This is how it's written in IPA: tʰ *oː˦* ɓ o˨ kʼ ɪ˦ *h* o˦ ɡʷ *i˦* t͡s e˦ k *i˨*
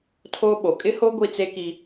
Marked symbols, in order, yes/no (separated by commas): yes, yes, yes, no